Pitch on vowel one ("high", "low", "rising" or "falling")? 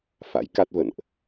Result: rising